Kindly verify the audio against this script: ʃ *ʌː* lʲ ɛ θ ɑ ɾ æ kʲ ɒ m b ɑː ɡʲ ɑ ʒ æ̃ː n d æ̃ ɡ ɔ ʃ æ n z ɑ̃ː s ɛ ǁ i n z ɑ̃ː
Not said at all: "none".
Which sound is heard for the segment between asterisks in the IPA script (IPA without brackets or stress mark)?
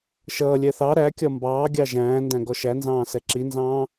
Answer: ʌː